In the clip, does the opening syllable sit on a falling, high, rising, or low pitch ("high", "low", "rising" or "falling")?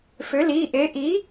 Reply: rising